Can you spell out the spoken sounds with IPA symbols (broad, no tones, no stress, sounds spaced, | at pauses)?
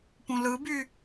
p ũ l ɯ b y